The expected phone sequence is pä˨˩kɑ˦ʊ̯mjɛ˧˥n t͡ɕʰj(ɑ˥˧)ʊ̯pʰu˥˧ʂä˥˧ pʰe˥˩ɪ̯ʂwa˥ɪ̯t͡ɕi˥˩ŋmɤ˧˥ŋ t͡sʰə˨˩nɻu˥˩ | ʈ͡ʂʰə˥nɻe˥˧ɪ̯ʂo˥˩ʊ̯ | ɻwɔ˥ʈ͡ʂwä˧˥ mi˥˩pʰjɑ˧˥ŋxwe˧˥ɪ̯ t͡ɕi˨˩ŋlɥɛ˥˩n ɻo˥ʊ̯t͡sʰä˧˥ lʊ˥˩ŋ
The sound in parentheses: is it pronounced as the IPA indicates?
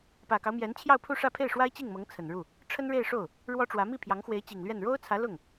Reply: yes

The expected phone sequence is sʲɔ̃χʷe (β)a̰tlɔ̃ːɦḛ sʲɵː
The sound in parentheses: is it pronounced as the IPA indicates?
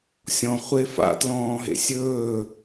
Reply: no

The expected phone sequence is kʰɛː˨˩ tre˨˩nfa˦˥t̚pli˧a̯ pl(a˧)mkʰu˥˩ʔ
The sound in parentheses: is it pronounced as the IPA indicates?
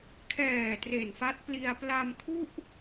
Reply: yes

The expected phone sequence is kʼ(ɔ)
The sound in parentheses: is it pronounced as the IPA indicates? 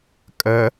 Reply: no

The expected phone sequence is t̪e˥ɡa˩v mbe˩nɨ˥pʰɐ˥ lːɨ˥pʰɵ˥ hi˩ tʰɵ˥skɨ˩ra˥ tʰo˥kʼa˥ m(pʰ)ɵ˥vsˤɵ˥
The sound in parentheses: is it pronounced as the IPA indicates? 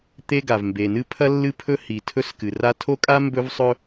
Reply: no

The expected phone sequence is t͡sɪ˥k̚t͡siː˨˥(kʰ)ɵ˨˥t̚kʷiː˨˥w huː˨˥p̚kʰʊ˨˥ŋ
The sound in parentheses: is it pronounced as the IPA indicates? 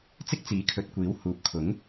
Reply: yes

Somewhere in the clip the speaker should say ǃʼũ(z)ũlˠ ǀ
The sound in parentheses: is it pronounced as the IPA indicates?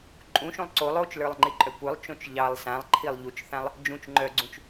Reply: no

